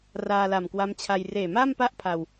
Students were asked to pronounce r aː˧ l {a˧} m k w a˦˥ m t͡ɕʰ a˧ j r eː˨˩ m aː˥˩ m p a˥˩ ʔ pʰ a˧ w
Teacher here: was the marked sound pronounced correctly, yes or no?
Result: no